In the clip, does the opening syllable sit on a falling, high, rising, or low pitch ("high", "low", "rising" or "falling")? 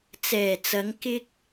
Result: low